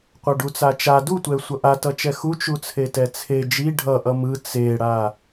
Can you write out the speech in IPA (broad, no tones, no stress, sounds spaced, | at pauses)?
qʷ a ɖ u t͡s a t͡ʃ a d u tʷ ɛ sʷ ʌ ʔ a t ʌ t͡ʃ ɛ x u t͡ʃ u t͡sʰ e t ɛ t͡sʰ e d͡ʒ i ɖʱ ʌ ʔ ʌ m ɯ t͡s e ɽ a